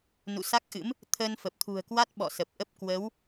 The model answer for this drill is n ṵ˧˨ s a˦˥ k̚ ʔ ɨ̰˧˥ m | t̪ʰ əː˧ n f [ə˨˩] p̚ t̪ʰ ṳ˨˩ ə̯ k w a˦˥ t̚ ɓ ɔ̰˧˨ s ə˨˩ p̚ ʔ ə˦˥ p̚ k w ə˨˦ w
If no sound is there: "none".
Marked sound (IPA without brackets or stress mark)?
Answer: ə˨˩